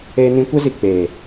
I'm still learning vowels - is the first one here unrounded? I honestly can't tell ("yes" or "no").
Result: yes